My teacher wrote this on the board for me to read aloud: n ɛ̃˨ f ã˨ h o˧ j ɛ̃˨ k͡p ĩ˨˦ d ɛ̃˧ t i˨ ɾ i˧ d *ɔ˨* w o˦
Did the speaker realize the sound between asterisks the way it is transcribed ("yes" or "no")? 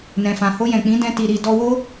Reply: no